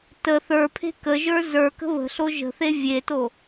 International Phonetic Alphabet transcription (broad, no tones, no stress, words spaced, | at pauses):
tə θə˞pʰe̤ kəʒə˞ zə˞ kə̤βə̤ɬo ʒə̤θe vʲeto